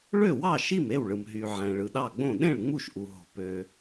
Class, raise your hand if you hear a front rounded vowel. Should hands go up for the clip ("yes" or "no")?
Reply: yes